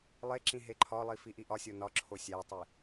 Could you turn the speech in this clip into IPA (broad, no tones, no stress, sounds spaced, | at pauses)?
lˠ e ǁ ĩ ɦ e ǃʰ ɒ lˠ i f i ʔ i ʔ ɒ sʲ o n ɒ ǁʰ o sʲ æ tˤ i